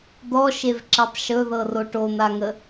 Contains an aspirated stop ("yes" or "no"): no